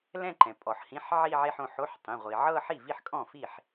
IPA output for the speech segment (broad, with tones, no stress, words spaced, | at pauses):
lɛ̃˥˧ǃɛ̃˩pʼɔ˩ħ hĩ˧˥˧ħʕi˥˧ʕe˥˧ħõ˩˧˩ ħo˧˥˧ħtˤĩ˩˧˩ ʁʷi˩ʕɤ˥˧ ħi˥˩vi˥˩ħkʼɔ̃˥˩ fi˥˩ħ